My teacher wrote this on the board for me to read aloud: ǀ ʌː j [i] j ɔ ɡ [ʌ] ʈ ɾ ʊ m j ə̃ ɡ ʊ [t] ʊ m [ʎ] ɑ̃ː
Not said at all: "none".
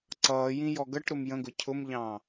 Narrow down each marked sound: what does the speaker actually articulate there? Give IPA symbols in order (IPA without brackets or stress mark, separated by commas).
ĩ, ʌ, cʰ, ʎ